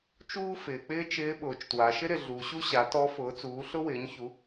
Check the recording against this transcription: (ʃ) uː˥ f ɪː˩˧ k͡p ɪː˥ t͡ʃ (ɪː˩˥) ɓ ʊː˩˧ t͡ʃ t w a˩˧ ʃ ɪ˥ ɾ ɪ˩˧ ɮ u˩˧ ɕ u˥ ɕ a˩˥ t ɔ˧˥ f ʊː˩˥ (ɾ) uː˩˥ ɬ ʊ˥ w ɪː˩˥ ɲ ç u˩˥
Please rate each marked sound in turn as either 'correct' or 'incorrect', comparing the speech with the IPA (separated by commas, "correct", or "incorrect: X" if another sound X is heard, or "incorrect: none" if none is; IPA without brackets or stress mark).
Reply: incorrect: t͡ʃ, incorrect: ɪː˧˥, incorrect: t͡s